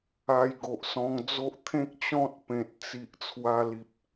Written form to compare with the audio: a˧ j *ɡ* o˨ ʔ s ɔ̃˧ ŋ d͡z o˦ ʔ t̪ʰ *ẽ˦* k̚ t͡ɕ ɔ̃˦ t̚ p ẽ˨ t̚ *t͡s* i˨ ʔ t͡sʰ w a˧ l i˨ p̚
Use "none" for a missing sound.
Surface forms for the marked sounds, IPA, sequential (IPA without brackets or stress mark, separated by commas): ɡ, ẽ˦, t͡s